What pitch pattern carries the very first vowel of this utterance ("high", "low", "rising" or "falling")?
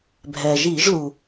low